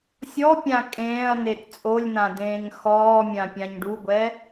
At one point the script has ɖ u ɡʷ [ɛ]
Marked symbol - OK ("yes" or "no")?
yes